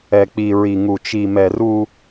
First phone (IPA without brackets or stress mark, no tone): ɛ